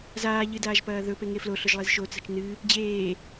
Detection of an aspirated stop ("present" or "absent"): absent